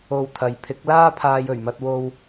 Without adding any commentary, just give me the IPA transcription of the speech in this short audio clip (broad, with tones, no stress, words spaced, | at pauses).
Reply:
o˧wt̪ʰɐ˨˥j pʰɪ˨˥k̚laː˥pʰaː˧j ɵ˨˩ɥmɐ˧t̚wo˧w